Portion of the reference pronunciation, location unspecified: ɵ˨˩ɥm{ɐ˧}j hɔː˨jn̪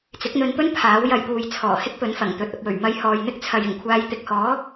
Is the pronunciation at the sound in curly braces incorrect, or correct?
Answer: correct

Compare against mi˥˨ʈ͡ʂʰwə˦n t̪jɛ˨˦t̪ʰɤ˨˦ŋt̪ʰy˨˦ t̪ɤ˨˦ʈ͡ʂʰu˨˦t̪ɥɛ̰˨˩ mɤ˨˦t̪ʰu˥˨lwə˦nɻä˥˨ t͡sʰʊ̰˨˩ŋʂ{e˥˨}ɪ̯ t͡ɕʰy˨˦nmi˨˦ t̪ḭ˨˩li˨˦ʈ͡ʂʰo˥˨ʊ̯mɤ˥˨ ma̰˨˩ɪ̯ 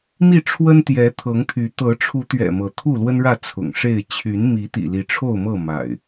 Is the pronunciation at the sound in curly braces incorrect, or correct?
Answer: correct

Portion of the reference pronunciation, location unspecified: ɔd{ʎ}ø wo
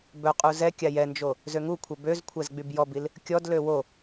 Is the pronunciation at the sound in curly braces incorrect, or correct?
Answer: incorrect: l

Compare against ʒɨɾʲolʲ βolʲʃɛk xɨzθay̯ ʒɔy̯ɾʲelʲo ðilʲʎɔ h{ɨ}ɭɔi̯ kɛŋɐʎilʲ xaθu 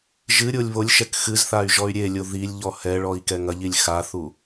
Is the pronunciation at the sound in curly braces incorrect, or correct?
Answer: incorrect: ɛ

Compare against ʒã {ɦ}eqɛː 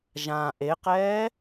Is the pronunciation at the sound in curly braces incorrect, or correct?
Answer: incorrect: ʔ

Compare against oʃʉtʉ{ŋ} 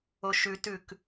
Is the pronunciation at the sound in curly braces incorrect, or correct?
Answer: incorrect: k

